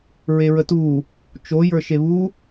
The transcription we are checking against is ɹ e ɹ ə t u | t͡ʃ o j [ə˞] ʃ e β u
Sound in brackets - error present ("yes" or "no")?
no